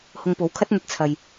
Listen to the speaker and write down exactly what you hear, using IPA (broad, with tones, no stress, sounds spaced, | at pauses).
h ʊ˧ ŋ p o˨˧ w kʰ ɐ˥ t̚ n̪ ɐ˧ t̚ t͡sʰ ɐ˧ j